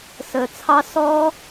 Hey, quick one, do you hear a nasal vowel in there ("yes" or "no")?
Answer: no